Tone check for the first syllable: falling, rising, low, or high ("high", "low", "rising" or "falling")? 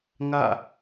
falling